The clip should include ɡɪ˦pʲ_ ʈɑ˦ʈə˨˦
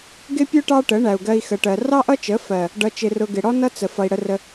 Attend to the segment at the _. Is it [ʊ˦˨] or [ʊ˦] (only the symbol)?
ʊ˦